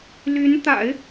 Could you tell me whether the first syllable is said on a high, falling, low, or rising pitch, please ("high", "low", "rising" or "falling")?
rising